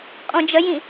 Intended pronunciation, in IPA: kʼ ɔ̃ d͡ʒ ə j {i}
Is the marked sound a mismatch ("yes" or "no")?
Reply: yes